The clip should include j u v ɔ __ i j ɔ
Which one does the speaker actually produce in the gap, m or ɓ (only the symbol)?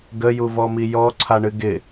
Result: m